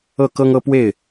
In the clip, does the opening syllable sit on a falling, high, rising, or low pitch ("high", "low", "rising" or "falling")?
falling